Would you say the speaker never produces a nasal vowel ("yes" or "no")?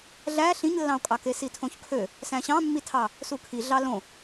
no